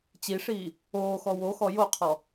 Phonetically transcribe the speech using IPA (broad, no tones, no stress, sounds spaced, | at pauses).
t͡ɕ i ʂ iː | oː x ɔ w o x ɔ j o qʰ ɔ